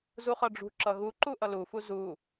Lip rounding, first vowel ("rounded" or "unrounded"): rounded